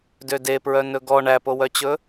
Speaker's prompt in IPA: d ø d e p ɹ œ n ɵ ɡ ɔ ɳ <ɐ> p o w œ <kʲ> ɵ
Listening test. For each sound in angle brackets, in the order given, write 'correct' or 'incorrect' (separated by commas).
incorrect, incorrect